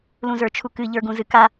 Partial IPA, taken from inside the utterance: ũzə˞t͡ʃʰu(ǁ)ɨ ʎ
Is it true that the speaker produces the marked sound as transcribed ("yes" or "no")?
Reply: no